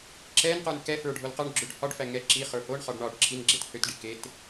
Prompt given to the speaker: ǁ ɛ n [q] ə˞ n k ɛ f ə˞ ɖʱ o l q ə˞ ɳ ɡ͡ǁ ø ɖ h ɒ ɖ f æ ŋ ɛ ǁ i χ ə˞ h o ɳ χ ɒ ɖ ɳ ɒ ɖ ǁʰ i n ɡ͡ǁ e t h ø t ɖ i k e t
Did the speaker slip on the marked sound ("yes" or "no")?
no